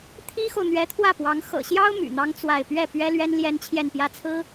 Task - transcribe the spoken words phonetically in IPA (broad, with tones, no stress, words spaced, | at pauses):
t̪ʰi˥xo˨ʊ̯ n̪ɥɛ˧˥t̪ʰwä˥˩pwɑ˧˥ŋ xɤ̰˨˩ɕjɑ˥ʊ̯ my̰˨˩n̪ɑ˥ŋ t͡swa˥˧ɪ̯ pɥɛ˥˩ pɥɛ˥lɥɛ˥n ljɛ˥nt͡ɕʰjɛ˥˧npjä˥˩t͡sʰɹ̩˥